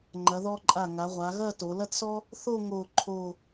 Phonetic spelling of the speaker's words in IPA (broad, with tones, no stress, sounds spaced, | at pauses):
ŋ͡ǃ ɐ˩˧ ð ɔ˧ ǃʼ a˧˩ ŋ a˩˧ ʁʷ a˩˧ ɣ ɐ˥˧ t o˩˧ l ɐ˥ t s ɔ˥ | θ o˥˧ ŋ o˥˧ ǃʰ o˥˧